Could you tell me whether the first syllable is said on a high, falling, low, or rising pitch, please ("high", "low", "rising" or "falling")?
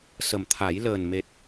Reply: low